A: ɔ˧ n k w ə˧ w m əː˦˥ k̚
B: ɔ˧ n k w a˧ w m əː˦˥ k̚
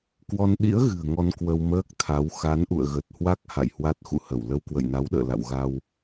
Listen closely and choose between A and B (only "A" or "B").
A